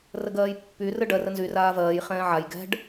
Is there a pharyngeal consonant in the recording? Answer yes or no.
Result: yes